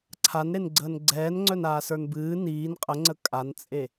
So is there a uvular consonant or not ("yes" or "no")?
yes